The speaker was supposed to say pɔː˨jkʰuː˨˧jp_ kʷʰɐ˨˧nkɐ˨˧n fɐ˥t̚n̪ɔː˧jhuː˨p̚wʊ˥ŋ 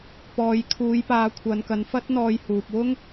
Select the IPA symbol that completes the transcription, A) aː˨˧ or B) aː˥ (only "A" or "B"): A